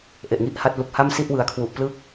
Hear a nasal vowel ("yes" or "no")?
no